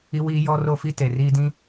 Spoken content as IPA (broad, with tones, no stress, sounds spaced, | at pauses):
i˦ w iː˦ j ɔ˦ r o˦ f i˦ t e˨ r iː˦ d ĩ˦